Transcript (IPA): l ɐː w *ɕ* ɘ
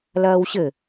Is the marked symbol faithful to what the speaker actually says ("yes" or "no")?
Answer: yes